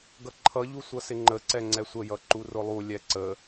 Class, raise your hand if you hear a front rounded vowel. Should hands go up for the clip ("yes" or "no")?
no